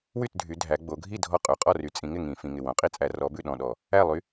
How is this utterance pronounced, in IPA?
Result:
w y˥˩ t dʱ y˩˧ dʱ æ˩˧ ɡ͡b o˩˧ ɡʱ i˥˩ dʱ ɔ˥˩ qʼ ʉ˩˧˩ qʼ ɔ˥˩ r y˩˧ t͡sʼ ĩ˩˧ ŋ ɪ˥˩ ŋ ĩ˧˩˧ f ĩ˩˧˩ ŋ ɪ˧˩ w õ˩˧ qʼ i˥˩ t͡sʼ æ˧˩˧ r ɔ˨˥ b ʉ˥˩ ɗ ɔ̃˧˩ ɗ ɔ˧˩˧ | æ˥˩ lˠ y˨˥

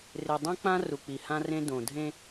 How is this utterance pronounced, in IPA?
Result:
r ɪ˨ dˤ õ˦ k͡p ã˦ r u˨ k͡p i˨ h ã˦ r ẽ˦ d õ˨ dʱ ẽ˦

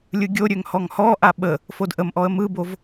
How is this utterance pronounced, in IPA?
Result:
lʲ ɯ ɡʲ o ɾʲ ø ŋ h ɔ ŋ h ɔ ʔ a ɓ ə | f o d ʔ ə m ʔ ɔ ə̯ m ɯ b o v

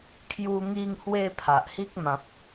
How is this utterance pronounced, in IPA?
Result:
kʰ j u˧ ŋ i˧ ŋ h w e˧ pʰ a˨ ʔ h i˦ k̚ m ã˨ p̚

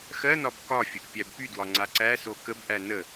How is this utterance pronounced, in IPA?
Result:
x ɜ n ɒ b k ɒ fʲ ə ʔ pʲ æ b p y d w ɒ ŋ͡ǀ a ǀ æ s o k ə b ʔ æ n ə

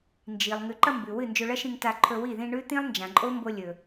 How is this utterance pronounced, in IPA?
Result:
n d͡ʒ i˨ lˠ ŋ ʉ˨ ǃ ɐ˧ m b ʉ˨ w ɨ˦˨ n d͡ʒ ɵ˧ ɭ ɐ˦ ʃ ĩ˧ ŋ t a˧ ǃʰ ɵ˧ w i˦˨ ð ĩ˧ ɳ ʉ˦ t̪ ĩ˦ lˠ n d͡ʒ ã˨ ǃʼ o˦ m b o˧ lʲ ɵ˨

